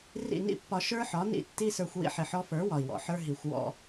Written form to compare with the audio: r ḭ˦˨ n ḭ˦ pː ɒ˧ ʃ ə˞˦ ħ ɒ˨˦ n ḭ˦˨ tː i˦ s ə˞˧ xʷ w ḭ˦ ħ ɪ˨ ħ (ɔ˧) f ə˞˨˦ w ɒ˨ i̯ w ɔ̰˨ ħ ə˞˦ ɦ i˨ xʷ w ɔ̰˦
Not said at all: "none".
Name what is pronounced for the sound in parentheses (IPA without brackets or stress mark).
ɔ˧